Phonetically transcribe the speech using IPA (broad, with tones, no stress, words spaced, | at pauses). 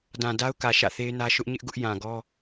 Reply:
dã˨da˦ʊ̯kä˨ ʃä̰˦˨θe˦ɪ̯nä˦ ʃʊ˦ʔɲɪ˦ʔ ɡʊ˦ʔjã˨ɡɔ˦